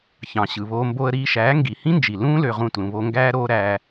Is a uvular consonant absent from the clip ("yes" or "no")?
no